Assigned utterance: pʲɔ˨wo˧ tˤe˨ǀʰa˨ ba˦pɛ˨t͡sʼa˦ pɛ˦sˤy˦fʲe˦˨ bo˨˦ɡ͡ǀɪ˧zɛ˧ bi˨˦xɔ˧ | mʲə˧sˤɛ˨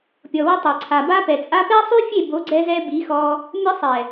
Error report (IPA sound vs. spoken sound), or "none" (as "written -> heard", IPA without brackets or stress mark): ɪ˧ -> ɛ˧